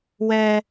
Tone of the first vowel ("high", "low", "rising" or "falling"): high